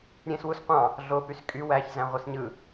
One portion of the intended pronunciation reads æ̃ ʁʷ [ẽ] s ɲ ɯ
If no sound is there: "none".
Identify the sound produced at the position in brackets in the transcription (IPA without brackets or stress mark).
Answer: e